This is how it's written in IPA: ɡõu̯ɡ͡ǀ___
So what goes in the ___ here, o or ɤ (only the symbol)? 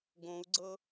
ɤ